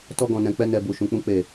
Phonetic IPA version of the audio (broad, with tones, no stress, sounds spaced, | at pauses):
t ɔ˧ ɡ ɔ̃˨ n ɛ̃˨ k͡p ɛ˧ n ɛ˨ b u˨ ʃ ũ˨ k͡p ũ˧ k͡p e˨